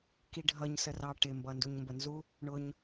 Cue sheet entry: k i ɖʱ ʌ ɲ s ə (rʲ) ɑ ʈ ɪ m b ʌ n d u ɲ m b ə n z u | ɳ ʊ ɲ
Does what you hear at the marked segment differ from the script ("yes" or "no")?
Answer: yes